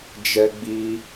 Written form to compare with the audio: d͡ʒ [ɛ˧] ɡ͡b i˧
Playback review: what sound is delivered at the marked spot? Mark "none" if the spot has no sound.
ɛ˧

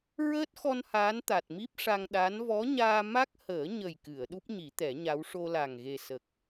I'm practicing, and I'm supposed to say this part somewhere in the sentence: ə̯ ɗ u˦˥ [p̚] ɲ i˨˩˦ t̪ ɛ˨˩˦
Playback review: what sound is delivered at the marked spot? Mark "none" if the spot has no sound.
p̚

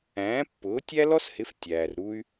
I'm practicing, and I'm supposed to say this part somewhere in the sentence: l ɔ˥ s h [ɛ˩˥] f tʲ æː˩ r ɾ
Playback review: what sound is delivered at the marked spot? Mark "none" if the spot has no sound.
ɪ˩˥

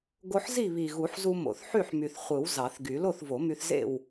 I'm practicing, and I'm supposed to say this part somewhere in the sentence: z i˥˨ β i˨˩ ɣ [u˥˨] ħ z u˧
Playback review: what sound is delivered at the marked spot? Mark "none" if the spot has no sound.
u˨˩˦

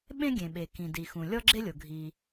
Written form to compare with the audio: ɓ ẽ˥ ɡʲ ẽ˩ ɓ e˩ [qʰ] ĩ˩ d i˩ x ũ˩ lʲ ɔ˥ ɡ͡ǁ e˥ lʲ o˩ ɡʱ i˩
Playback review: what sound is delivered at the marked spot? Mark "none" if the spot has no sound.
k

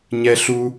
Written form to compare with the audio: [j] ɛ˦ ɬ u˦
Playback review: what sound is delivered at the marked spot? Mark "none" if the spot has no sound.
ɲ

